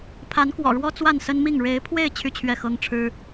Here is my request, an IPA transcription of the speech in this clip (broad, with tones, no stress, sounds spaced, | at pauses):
pʰ a˧˥ n k w ɔ̰˨˩ ɻ w ɔ˥ t͡s w a˥˩ n s ə˥ n m i˥˩ ŋ ɻ e˧˥ ɪ̯ pʰ w e˥˧ ɪ̯ t͡ɕʰ y˥˧ t͡ɕʰ ɥ ɛ˥˩ x ɤ˥ ŋ ʈ͡ʂʰ ɻ̩˥